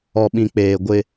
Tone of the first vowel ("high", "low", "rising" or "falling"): low